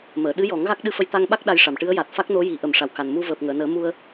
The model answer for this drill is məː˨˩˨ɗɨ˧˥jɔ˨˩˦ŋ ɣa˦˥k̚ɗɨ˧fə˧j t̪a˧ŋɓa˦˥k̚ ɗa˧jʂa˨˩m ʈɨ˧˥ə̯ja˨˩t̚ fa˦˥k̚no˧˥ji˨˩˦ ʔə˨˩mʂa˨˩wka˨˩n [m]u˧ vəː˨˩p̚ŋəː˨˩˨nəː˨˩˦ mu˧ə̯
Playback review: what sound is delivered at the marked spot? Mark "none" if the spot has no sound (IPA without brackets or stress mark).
m